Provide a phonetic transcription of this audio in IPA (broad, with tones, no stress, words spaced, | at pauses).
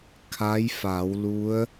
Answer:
kʰa˧˥jfa˩˧w lu˧˥ə̯